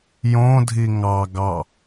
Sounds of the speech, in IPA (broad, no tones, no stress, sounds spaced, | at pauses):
j õ dʱ i ŋ ɑ ɡ ɑ